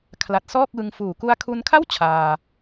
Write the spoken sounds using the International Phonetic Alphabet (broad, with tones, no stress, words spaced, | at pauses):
kʰla˨˩t̚sɔː˥˩k̚wɯ˧ŋ fuː˨˩ ku˧a̯kʰu˧nkʰa˥˩w t͡ɕʰaː˧